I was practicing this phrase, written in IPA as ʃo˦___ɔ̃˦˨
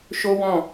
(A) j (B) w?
B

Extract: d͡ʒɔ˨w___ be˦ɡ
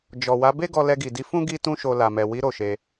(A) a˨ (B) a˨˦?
B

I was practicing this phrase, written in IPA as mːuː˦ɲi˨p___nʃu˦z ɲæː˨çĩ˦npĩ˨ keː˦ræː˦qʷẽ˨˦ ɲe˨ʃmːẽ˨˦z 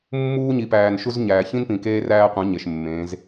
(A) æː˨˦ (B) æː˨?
B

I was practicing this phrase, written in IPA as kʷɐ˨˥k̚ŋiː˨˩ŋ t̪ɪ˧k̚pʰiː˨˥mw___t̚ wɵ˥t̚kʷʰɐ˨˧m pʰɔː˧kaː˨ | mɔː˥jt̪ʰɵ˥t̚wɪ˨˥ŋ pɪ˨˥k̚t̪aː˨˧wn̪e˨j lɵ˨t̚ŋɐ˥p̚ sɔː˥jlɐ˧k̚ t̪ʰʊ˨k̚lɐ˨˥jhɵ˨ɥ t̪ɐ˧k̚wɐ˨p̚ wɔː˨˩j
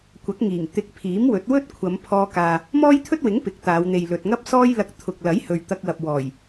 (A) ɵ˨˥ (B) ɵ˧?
A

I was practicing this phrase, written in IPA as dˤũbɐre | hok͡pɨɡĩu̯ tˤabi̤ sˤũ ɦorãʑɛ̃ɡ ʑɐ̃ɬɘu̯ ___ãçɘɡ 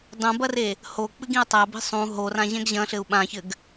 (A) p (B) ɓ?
B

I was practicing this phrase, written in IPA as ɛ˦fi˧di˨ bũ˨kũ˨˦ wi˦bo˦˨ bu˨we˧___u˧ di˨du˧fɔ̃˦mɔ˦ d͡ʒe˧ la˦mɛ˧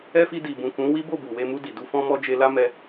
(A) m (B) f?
A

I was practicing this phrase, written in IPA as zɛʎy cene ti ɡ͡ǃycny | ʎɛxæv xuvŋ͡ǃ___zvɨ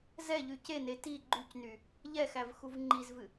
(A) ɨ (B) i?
B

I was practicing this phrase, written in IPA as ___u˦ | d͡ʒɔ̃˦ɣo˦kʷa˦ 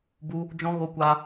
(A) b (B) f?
A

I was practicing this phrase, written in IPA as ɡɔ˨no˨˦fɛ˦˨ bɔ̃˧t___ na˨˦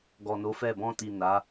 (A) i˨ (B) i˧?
A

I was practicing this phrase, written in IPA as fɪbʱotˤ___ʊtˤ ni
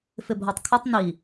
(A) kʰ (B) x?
A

